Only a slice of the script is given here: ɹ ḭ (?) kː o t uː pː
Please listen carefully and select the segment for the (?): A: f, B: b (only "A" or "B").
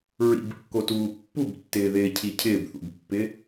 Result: B